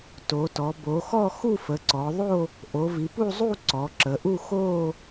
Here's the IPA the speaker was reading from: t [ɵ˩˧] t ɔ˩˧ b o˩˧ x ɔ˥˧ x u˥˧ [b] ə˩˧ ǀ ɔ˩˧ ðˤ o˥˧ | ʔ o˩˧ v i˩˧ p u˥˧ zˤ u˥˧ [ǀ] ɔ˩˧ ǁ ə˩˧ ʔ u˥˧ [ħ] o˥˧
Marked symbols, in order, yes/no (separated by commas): no, no, yes, no